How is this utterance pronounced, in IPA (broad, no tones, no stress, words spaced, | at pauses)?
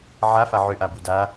ʕafa ʕʏʔabu da